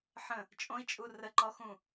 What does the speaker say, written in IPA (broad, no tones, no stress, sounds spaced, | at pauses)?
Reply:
ħ ə̃ | t͡ʃʼ õ i̯ t͡ʃʼ u r ə ǃ ɔ x ũ